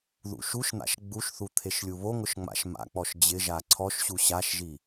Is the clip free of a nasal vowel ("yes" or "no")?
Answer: yes